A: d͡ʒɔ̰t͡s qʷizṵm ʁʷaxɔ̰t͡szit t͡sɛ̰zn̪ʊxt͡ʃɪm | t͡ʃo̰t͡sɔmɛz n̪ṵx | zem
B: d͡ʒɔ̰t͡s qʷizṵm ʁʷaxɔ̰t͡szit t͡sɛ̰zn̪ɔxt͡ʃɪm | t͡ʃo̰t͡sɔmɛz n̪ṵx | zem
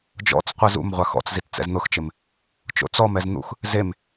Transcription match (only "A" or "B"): A